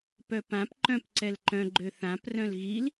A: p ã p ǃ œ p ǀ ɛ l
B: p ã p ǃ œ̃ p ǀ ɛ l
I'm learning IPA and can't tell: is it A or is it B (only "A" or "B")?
B